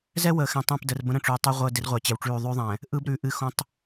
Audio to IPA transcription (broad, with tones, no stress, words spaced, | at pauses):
zɛ˦ wəː˨xɛ̃˨ tˤɛ̃˦˨pdə˨rbə̃˦ ɾə̃˦˨ʈ͡ʂʉː˨tˤʉ˦ ʁʷəː˦ dɪ˦rʁʷɛ˨t͡ɕɛ˨wʈ͡ʂʉː˦˨ ðˤʉ˦ðˤɛ̃˨ | ʔɯ˦b ɾʉ˨ʔɨ˦ xõ˦tˤ